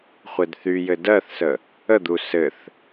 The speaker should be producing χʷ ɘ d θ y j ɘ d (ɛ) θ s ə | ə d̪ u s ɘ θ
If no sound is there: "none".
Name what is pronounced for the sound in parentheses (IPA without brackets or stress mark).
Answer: ɜ